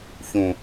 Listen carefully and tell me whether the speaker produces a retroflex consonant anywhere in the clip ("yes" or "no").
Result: no